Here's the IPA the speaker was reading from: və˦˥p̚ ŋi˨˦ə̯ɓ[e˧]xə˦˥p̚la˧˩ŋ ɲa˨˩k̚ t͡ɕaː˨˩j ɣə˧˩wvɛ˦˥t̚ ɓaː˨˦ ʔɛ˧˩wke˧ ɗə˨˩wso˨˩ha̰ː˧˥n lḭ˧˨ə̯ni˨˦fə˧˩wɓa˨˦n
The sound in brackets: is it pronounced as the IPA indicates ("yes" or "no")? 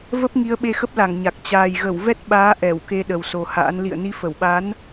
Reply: yes